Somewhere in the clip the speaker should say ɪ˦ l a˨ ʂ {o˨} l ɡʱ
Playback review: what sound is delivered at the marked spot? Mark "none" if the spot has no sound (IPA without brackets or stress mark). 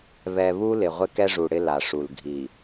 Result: u˨